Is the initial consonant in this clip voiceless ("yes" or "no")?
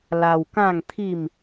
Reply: no